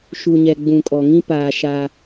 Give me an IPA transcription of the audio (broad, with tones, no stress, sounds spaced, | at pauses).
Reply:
ʃ u˨ ɲ ɛ˨ ɡ͡b ũ˨ kʼ ɔ˨ ŋ ĩ˦ p aː˨ ʃ aː˦